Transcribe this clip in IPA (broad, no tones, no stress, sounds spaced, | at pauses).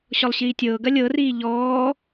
ɕ ɔ lˠ ɕ iː tʲ ɤː ɡ ɐ lʲ ɤ r iː ʎ ɔː